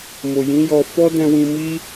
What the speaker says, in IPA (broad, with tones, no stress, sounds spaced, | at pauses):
m o˨ j ĩ˨˦ j ɔ˧ f ɔ˦ d ɛ̃˧ w ĩ˧ m i˦